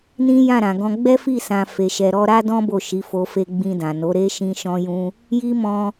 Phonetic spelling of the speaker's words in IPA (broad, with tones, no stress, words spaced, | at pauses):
nĩ˦ jã˦˨ɾã˨ɡɔ̃˧ ɡ͡bɛ˦fi˦˨ sã˧ fe˨ʃɛ˨ɾɔ˧ ɾa˦dɔ̃˦ bo˦˨ʃi˨˦fo˧ fe˦ ɡ͡bĩ˧dã˨no˨˦ɾe˦ ʃĩ˦ ʃɔ̃˦jũ˦ | ji˦mɔ̃˧